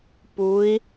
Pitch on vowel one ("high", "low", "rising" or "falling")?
rising